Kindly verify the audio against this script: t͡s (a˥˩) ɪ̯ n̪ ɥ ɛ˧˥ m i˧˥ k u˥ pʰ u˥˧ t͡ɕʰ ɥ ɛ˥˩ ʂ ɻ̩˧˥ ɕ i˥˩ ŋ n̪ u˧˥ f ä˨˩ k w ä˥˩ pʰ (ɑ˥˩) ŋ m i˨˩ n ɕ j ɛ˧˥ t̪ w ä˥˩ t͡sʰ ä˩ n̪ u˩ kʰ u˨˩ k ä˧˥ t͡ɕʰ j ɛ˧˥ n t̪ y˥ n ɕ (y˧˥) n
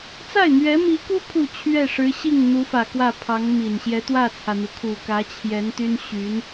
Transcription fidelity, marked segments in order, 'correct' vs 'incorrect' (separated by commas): correct, incorrect, correct